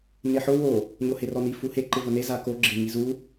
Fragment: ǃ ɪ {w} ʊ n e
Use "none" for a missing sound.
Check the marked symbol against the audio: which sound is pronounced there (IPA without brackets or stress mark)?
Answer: v